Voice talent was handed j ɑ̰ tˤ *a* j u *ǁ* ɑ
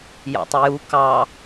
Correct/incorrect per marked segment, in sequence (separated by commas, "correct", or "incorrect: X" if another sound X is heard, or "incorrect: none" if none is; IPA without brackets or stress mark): incorrect: ə, incorrect: k